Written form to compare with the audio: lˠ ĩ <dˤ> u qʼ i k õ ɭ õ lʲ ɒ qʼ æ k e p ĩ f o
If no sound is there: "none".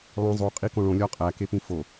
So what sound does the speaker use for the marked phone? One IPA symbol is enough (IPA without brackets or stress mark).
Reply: zˤ